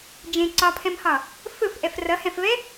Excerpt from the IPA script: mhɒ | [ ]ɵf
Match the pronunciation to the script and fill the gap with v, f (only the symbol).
f